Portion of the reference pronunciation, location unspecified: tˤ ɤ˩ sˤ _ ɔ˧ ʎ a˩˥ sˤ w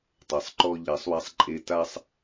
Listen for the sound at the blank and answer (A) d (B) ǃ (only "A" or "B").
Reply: B